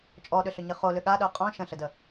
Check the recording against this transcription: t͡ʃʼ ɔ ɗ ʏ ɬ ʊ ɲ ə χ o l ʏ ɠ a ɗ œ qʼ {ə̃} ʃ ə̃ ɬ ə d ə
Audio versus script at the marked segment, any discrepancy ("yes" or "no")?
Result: yes